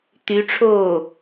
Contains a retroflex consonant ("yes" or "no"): yes